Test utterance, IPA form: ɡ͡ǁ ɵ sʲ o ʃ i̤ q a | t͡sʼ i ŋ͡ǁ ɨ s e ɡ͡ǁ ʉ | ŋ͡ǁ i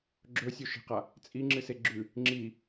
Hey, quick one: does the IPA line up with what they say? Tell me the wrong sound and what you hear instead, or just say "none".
none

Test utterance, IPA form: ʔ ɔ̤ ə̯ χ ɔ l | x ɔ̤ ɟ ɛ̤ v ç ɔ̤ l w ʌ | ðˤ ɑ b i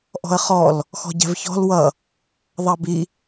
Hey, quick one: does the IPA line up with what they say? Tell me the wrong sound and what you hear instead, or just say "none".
none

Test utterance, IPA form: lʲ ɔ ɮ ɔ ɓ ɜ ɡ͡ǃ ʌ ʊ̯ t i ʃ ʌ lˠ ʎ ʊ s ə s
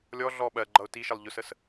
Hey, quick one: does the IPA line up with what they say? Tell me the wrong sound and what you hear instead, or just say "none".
none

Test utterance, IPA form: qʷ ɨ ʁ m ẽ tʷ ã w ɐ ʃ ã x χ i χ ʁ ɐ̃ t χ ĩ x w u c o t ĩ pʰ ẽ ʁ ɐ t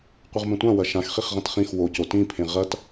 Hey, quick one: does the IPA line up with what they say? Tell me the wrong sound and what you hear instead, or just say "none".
u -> o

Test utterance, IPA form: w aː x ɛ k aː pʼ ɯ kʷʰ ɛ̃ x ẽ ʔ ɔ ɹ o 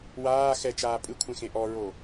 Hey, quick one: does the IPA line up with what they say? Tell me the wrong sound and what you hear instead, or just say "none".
k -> t͡ʃ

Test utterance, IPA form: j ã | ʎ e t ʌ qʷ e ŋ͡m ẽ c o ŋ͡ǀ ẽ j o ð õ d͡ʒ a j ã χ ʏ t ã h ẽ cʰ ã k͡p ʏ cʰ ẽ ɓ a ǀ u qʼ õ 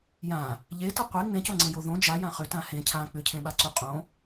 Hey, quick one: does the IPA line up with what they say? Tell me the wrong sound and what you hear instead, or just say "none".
none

